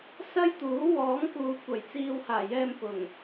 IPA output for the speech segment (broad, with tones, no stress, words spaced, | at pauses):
sɐ˥jt̪uː˨˥wɔː˨˥ŋkuː˨ kʷɐ˨˩jt͡siː˧whaː˨˩jɛː˧m pʊ˨˩ŋ